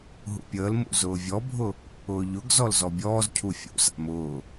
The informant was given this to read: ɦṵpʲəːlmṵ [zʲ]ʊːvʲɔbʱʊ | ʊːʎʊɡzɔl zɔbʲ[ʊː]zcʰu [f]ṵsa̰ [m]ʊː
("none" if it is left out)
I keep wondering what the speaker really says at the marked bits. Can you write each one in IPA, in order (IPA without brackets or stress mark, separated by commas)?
z, ɔː, fʲ, m